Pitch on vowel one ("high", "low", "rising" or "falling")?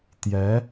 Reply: rising